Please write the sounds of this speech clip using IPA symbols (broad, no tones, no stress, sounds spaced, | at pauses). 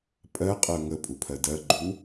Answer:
pʼ ɜ qʼ ɜ ŋ ə pʼ u pʰ ɜ d ɜ ɡ͡ǃ u